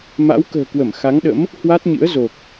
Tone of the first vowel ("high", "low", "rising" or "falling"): rising